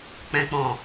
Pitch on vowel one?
low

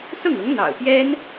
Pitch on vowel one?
falling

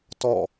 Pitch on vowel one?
falling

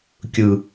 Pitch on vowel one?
low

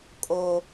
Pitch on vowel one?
high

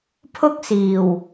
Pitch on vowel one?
high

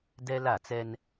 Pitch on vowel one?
high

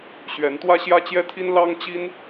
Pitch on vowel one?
rising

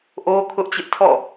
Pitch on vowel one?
high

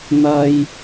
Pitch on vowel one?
high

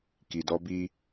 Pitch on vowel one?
low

